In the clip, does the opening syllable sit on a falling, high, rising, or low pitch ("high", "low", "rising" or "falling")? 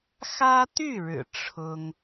high